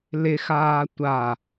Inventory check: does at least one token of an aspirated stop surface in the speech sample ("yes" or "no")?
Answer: no